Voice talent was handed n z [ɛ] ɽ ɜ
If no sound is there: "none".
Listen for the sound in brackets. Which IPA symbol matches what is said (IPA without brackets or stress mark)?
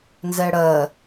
ɛ